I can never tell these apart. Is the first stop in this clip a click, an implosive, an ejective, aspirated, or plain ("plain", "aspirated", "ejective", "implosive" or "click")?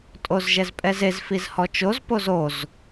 ejective